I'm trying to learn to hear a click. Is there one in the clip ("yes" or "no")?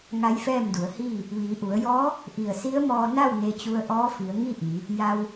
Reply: no